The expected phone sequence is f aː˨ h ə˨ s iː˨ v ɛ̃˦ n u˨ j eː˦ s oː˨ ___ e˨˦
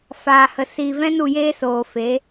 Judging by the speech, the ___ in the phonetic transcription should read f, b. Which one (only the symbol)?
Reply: f